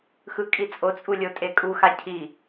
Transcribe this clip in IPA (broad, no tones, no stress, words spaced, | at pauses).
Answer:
xɯkʼit͡sʼot͡sʼu lʲotʼekʼuxa cʰi